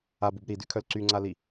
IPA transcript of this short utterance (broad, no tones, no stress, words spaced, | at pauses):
abub ɾidykʰœl ǀyŋ͡ǀali